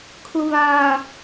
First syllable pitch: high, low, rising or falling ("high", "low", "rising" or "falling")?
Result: low